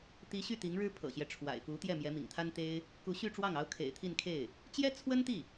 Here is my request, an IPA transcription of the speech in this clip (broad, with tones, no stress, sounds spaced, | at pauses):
t̪ i˧˥ ɕ y˥˩ t̪ i˧˥ ŋ ɻ ɻ̩˥ pʰ ɤ̰˨˩ ɕ j ɛ˦ ʈ͡ʂʰ w a̰˨˩ ɪ̯ f u˧˥ t̪ j ɛ˥˩ m j ɛ˧˥ m ḭ˨˩ ŋ t̪ʰ a˥ n t̪ e˥ ɪ̯ | k u˧˥ ɕ y˥˧ ʈ͡ʂ w ɑ˥˩ ŋ ɑ˧˥ ʊ̯ kʰ ḛ˨˩ ɪ̯ t̪ʰ i˥˧ n kʰ e˥˩ ɪ̯ | t͡ɕ j ɛ˥ t͡sʰ w ə˥ n t̪ i˥˩